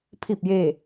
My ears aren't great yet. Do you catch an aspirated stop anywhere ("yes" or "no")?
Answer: yes